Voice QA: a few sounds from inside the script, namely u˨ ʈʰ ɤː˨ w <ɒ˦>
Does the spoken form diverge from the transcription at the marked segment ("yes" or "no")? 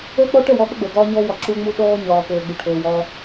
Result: yes